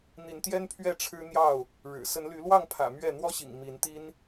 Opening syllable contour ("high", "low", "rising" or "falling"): rising